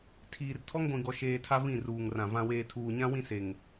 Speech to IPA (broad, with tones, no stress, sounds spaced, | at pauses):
tʰ iː˨ r tʰ ɔ˦ ŋ ɡʷ ĩ˨ ɡ ɔ˨ ʃ eː˨ tʰ a˦ v ĩ˦˨ r uː˨ ŋ r ã˨ v ã˨ w eː˨ tʰ uː˨ ɲ ã˦ w ĩ˦ s e˨ ŋ